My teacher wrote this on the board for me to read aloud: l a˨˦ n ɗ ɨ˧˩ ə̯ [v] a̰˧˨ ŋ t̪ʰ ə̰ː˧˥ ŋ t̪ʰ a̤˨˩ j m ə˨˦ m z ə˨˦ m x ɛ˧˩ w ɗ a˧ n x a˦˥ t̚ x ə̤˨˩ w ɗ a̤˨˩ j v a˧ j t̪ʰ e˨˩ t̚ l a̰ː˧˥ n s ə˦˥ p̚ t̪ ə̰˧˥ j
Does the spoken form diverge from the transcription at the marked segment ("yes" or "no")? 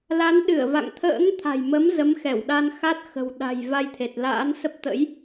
no